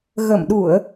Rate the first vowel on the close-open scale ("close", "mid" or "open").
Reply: mid